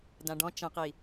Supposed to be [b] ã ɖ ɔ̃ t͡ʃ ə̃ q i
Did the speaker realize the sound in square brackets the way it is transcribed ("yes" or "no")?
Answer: no